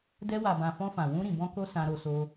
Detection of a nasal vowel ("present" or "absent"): present